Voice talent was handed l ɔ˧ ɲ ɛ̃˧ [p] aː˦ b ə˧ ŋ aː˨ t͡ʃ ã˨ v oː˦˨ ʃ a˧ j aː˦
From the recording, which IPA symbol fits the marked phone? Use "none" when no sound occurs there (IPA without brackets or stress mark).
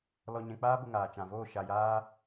k͡p